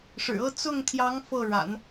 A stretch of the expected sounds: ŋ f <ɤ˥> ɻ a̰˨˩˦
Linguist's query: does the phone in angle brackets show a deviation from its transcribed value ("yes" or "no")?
yes